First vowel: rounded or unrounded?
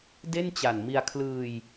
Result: unrounded